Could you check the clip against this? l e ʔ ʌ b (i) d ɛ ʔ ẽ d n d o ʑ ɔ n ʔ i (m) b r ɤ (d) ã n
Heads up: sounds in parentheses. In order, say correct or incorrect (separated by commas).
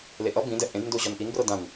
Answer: incorrect, incorrect, correct